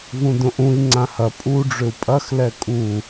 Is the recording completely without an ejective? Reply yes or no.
no